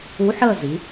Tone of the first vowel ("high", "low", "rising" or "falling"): rising